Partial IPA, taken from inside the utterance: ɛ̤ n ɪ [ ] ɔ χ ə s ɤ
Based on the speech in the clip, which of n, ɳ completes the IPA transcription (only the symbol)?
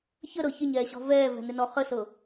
n